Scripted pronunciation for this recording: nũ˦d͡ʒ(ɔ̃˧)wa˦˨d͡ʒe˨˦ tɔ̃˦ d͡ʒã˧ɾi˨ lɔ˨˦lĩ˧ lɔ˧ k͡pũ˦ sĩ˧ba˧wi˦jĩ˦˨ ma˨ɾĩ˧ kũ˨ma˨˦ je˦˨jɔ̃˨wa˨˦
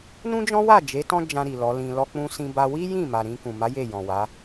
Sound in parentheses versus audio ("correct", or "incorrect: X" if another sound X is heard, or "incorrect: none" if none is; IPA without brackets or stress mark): incorrect: ɔ̃˦